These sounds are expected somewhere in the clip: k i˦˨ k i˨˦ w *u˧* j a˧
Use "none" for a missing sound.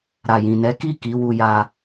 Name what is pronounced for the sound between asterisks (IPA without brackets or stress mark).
u˧